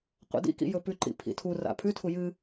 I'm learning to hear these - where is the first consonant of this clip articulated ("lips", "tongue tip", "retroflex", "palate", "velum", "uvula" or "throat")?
uvula